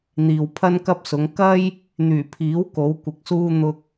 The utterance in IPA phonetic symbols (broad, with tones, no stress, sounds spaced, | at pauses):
n̪ iː˨ w pʰ ɐ˥ n k ɐ˥ p̚ s ʊ˨˧ ŋ k ɐ˥ j | n̪ yː˨˩ pʰ iː˨˥ w k o˨˥ w kʷ ɪ˨ k̚ s uː˥ n̪ ʊ˧ k̚